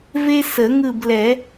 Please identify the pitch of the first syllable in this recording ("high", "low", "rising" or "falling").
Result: high